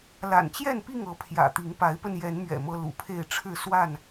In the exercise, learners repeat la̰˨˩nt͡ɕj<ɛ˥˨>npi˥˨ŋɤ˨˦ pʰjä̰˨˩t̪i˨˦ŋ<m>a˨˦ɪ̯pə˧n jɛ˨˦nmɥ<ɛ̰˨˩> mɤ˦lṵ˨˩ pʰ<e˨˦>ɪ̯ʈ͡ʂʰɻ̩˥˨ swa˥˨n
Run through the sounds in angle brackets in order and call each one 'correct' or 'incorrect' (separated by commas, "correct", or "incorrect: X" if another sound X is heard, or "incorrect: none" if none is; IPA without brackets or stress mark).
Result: correct, incorrect: p, correct, incorrect: e˥˨